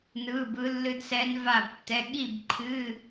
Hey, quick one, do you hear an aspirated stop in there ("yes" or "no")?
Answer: yes